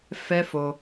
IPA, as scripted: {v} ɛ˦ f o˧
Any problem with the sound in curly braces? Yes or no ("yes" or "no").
yes